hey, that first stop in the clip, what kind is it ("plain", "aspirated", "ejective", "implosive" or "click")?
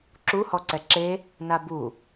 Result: click